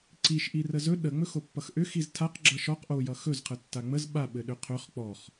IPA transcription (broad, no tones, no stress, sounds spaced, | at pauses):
ǀ i ʃ ʔ i r ə z ɵ ɗ ə ŋ͡m ɵ x o pː ʌ x ʔ ʏ x i z tʰ a q ɡ͡ǁ ʌ ʃ ɔ q ʔ o j ʌ x ɵ z qʰ ə tː a ŋ͡m ə z ɓ a ɓ ɘ ɗ ʏ qʰ ɵ χ k͡p ɔ χ